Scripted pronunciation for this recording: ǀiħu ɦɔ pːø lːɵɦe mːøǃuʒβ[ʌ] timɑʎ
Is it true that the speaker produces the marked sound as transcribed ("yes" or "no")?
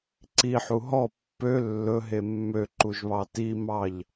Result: no